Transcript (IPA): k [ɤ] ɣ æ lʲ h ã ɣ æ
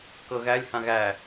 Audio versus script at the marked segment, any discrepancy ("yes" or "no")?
no